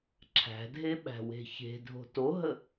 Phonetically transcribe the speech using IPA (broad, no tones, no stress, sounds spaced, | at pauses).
ǁʰ æ̤ dʱ e ɓ æ̤ w e̤ ç e̤ dʱ o̤ t o ɦ ə